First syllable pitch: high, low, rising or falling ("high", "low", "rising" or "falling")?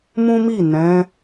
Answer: high